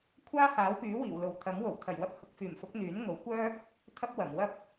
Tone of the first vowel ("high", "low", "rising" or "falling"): high